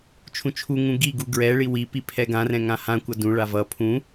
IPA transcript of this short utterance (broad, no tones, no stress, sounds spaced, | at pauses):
t͡ʃʰ ũ t͡ʃʰ u ŋ ũ ɡ i ɡ u ɡ ɹ ɛ ɭ i w i p i pʰ ɛ ɡ ã r ɛ̃ ŋ ã h ã kʷ ʌ d ũ ɭ a v ʌ pʰ ũ